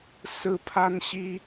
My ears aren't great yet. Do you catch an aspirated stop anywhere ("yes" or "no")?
yes